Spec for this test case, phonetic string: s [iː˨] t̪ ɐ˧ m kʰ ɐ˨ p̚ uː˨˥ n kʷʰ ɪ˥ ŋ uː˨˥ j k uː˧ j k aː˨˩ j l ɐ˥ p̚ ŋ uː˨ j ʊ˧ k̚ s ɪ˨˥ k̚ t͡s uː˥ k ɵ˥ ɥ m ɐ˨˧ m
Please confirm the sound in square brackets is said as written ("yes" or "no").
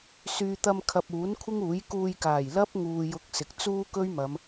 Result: no